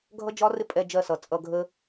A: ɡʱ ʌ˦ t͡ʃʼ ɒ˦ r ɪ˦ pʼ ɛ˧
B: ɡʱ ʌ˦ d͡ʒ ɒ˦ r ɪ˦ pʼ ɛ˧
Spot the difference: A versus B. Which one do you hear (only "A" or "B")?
B